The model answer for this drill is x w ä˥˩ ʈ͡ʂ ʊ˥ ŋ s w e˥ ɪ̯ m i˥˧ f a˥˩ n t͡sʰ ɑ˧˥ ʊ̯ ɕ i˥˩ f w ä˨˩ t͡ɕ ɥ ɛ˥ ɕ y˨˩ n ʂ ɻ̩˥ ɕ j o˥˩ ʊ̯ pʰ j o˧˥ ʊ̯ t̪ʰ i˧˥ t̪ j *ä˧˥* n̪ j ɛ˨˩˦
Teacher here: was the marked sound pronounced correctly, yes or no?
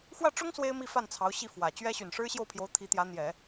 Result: yes